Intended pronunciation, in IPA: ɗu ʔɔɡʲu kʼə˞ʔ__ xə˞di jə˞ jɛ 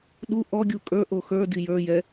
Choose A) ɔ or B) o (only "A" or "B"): B